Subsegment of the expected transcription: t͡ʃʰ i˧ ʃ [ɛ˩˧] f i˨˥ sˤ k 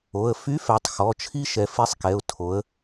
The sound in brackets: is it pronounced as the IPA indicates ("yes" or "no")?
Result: yes